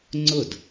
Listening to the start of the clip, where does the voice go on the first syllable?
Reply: falling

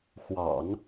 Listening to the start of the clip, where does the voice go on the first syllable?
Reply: low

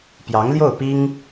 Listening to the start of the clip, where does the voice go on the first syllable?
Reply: rising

